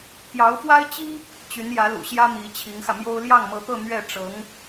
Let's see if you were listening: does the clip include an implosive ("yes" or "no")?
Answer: no